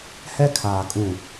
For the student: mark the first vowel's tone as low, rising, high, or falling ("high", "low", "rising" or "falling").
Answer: high